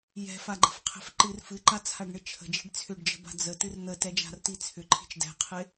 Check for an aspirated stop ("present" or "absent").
present